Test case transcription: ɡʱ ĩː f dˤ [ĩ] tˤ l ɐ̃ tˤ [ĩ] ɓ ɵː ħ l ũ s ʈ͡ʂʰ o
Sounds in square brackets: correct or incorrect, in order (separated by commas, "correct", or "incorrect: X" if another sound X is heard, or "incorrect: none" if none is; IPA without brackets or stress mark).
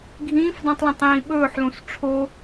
correct, incorrect: ĩː